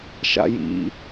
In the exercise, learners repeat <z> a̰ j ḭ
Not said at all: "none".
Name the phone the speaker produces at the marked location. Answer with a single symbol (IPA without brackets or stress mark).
ʃ